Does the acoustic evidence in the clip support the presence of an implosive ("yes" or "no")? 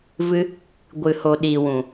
yes